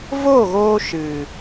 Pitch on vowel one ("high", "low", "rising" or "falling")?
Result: falling